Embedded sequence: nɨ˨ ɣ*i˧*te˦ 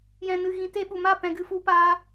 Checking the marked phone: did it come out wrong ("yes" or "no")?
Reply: yes